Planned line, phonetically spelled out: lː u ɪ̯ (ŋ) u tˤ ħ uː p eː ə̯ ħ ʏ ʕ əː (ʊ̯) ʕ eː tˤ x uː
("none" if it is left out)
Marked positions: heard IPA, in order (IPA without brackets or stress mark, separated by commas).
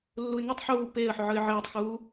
ŋ, ɪ̯